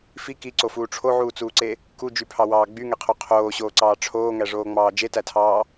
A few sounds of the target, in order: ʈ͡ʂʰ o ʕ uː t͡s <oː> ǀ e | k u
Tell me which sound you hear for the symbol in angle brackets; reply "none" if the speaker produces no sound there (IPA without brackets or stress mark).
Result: uː